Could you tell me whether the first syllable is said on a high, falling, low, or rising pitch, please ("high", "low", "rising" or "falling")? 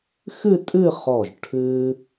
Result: falling